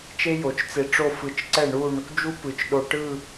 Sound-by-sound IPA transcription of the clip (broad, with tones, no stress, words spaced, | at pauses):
t͡ʃe˥jo˩˧t͡ʃt͡se˧ʈ͡ʂo˥˧ fɯ˧˩t͡ʃǀɛ˥˧ɳu˥˧ɳ | d͡ʒu˥pɯ˩˧t͡ʃɗo˧ ʈɯ˥˧